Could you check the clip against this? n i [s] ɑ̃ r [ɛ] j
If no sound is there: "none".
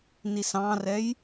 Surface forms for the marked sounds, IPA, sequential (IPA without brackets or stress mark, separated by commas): s, ɛ